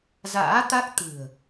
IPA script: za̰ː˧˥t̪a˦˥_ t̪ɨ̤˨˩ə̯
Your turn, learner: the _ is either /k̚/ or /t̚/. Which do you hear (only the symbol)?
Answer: k̚